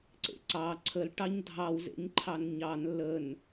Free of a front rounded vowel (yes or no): yes